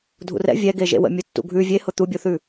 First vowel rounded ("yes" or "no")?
yes